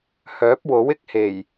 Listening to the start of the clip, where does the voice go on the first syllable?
rising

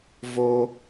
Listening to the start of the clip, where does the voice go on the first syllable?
high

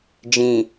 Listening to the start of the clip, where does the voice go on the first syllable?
low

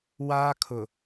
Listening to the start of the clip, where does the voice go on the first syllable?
high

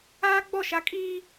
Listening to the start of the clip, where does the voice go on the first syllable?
high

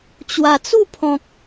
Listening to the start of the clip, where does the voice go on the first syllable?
low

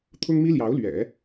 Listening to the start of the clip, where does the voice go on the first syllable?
high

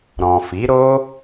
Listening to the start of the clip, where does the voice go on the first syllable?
low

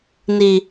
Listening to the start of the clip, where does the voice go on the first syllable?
low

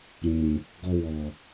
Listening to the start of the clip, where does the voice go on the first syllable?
low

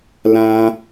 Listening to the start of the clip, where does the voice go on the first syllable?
high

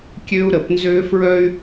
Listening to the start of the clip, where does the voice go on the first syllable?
high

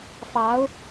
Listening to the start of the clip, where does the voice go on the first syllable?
rising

